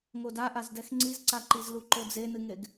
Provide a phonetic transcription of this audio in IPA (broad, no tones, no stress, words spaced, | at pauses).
ŋodaʔazdɛx ŋ͡ǀizǀaǃizlu ǃod͡zenɨŋeɡ